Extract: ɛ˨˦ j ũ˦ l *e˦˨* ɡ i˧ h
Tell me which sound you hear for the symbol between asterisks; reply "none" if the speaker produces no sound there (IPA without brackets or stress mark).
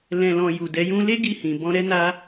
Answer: e˦